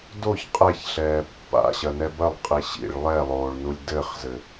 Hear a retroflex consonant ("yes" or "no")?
yes